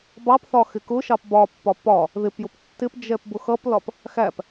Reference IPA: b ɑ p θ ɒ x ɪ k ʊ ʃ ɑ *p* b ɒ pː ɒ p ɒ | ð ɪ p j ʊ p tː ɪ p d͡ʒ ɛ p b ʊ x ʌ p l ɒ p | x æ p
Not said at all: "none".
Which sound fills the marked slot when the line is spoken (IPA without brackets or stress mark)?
p